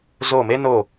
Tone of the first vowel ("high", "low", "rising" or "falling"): falling